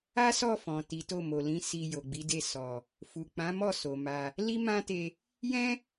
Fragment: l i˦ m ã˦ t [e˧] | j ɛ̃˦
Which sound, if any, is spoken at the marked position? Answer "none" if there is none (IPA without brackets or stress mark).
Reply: e˧